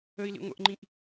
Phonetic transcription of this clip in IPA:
əi̯ lḭŋʷə̰ʔŋ͡ǃĩʔ

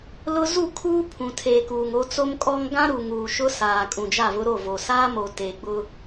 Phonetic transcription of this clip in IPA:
lʊ˦ zu˦˨kʰuː˦pʰũ˨ tʰeː˨kuː˨ŋ o˦t͡so˦mkʼɔ˦ŋ ɡã˦ɾu˨ŋuː˨ ʃʊ˦saː˨ kʼũ˨d͡ʒa˦˨vʊ˦ɾo˦˨ vo˨saː˦mo˨ teː˨ɡ͡bʊ˦

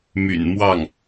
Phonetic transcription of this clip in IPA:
my̰˨˩n mwɑ˥˩ŋ

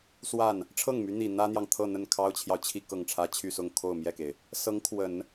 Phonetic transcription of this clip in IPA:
swa˥˩n | ʈ͡ʂʰɤ˥˩ŋmy˧˥n̪i˨˩ n̪ä˥n̪jɑ˨ŋt̪ʰɤ˥˧ n̪ə˥˩n kʰɑ˥ʊ̯t͡ɕʰjɑ˨ʊ̯t͡ɕʰi˥˧ kɤ˥˩ŋʈ͡ʂʰä˥ t͡ɕʰy˥˧sʊ˥˧ŋ kʰo˥˧ʊ̯mjɛ˥˩ke˩ɪ̯ | sɤ˧˥ŋkʰwə˨˩˦n

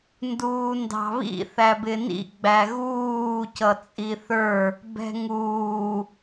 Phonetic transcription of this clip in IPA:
nduːndɑ̤βḭ θæbɪnḭ ɡ͡bæɣuː cʌt͡sʼiθə˞ | bɛ̤ŋuː

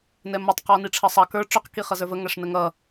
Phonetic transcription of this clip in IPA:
nɛmʌtˤ qɔniʈ͡ʂʰʌsˤɑ kə˞ ʈ͡ʂʊq kiχʌzə˞və ŋæʂnəŋʌ

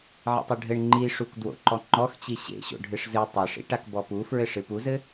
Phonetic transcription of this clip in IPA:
ʕḭtˤeɖʱɘɳ ŋ͡ǃiʂuk dwo̰ǃɔŋ͡ǃɔxt͡ɕi ɕḛ ɕo̰ɖʱɨʂzɨ tˤɛʂḭʈak bɔpufɹɘ ʂɨpuzɘ

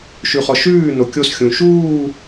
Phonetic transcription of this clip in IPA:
ʃʉχɔʃʉːno kʲosxʲũ ʃuː

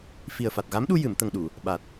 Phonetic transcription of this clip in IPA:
fi˨˩ə̯fa˨˩t̚ɣa˧˥mɗu˧ jɨ˨˩˨m t̪ə˨˩ŋɗu˨˩˨ | ɓa˨˩t̚

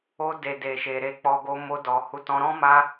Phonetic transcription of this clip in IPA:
o˧de˨ de˨ʃe˨ɾe˧k͡pɔ˧ ɡo˧ mo˧dɔ˨ hu˨˦tɔ̃˧ɾɔ̃˦ ma˦

